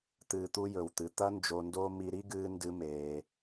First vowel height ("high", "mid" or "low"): high